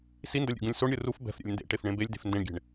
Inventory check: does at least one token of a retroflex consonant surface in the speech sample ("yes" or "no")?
yes